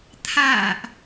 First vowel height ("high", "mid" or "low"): low